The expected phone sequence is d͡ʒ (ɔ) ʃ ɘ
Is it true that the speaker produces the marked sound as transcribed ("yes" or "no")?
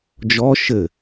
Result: yes